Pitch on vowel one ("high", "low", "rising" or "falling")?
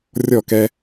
falling